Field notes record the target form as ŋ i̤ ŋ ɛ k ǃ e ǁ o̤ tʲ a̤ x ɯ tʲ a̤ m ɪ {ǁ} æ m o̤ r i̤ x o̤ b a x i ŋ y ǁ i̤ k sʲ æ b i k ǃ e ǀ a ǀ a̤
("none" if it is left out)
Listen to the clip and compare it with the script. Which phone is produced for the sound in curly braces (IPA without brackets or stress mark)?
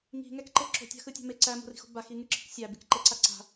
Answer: ǀ